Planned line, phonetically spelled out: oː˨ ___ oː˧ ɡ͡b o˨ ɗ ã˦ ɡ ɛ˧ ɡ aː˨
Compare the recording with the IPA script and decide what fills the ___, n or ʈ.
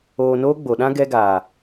n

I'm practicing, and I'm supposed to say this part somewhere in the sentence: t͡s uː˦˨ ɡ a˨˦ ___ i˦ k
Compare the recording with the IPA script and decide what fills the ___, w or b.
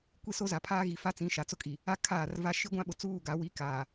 w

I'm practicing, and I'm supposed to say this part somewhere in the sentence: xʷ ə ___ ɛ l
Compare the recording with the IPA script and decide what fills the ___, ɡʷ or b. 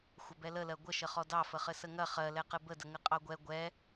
b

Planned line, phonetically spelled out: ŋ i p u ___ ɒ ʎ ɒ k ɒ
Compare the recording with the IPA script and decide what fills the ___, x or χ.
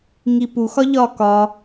x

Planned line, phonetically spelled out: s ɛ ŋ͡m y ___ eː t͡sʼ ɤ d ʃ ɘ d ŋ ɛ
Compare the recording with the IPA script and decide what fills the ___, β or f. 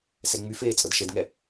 f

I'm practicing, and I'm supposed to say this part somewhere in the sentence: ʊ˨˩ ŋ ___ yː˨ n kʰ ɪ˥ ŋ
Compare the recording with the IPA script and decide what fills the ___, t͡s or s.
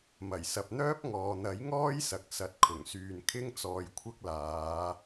s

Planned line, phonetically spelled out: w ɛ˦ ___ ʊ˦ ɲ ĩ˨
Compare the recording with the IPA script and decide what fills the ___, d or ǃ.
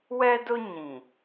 d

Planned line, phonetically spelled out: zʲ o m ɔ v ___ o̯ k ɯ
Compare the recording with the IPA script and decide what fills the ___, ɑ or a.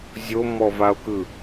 a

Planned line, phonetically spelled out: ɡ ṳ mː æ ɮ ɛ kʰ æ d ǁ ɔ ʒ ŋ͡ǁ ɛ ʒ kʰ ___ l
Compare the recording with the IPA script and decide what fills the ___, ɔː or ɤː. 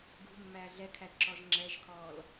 ɔː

